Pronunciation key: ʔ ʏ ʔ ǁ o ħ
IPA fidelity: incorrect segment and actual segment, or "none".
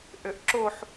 none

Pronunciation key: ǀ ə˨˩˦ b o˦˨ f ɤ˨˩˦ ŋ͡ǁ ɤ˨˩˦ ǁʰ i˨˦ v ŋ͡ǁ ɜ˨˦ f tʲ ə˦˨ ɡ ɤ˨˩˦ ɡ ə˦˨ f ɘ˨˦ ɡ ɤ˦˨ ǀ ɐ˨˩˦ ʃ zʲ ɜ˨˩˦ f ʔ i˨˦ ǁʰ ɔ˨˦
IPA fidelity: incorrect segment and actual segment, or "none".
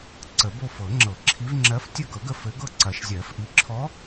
none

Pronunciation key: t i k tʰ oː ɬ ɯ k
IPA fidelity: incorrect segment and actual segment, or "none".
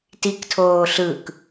none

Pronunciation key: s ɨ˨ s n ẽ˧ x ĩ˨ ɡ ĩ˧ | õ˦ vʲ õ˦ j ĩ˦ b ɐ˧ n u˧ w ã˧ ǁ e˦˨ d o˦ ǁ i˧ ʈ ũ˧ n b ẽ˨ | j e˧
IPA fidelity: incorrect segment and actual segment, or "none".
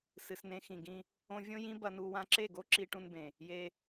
d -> ɡ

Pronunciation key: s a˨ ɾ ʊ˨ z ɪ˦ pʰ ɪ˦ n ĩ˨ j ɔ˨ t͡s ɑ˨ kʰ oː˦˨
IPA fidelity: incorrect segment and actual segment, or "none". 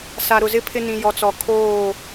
ɑ˨ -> ɔ˨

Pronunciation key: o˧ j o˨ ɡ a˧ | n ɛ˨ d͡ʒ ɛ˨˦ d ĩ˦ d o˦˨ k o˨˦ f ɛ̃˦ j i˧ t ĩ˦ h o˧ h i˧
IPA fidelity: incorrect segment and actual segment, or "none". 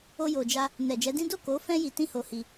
ɡ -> d͡ʒ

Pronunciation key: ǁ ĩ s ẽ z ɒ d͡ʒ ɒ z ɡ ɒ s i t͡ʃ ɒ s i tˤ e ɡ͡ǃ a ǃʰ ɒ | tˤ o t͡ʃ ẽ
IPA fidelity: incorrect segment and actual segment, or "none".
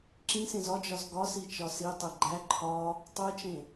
a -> æ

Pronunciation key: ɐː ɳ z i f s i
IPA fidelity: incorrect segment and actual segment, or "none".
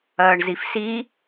none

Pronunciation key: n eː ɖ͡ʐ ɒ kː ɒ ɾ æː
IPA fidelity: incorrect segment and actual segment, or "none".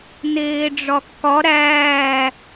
none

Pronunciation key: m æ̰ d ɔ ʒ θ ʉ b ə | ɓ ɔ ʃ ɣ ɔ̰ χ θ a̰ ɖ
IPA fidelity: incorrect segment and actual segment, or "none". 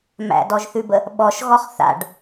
ɔ̰ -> ɔ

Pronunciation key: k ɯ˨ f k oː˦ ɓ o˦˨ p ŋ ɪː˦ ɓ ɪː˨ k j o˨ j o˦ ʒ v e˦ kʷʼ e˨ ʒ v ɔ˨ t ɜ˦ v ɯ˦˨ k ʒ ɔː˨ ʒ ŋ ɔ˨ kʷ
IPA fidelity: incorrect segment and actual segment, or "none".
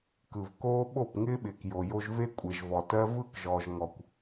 f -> v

